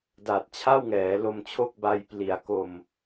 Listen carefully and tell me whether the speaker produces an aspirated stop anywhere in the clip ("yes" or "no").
yes